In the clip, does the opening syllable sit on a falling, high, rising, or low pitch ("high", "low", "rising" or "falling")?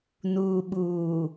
low